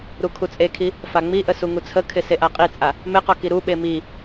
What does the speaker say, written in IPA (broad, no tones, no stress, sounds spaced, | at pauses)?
ɾ u kʰ u t͡sʼ e kʰ i | f a ŋ͡m i ʔ ə s u ŋ u t͡sʰ ə kʰ ɪ s e ʔ a qʼ i t͡sʼ a | m ɪ q ɔ k i ɾ u ɓ e m i